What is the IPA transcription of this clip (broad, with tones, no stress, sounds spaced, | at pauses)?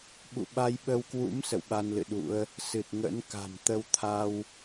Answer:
ɓ ṵ˧˨ ɓ a˧ j ɓ ə˧ w k w ṵ˧˥ m s ə̰˧˨ w ɓ a˧ n l ɨ̰˧˨ ɗ ṵ˧˥ ə̯ | s ɨ˨˩ t̚ ŋ ə̰˧˥ n k a̤˨˩ m t̪ ə˧ w t̪ʰ a˧ w